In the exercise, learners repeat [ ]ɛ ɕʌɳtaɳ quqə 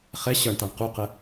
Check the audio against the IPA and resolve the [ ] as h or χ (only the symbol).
χ